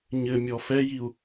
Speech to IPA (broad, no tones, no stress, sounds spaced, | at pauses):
ɲ ɘ mʲ ɔ f ɛ j i u̯